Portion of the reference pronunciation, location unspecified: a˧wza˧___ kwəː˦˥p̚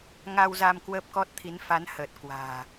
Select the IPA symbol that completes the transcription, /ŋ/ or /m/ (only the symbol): m